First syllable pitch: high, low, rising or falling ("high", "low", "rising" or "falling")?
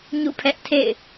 falling